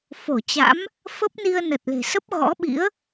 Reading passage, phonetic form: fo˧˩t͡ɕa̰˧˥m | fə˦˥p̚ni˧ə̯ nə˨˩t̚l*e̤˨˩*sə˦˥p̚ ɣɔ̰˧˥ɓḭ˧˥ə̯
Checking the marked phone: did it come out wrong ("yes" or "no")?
no